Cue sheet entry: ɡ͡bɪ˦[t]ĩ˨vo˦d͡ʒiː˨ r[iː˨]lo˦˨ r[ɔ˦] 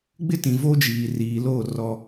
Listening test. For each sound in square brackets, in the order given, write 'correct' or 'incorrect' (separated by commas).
correct, correct, correct